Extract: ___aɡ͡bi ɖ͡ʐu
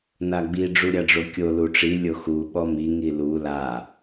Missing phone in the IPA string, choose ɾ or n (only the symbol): n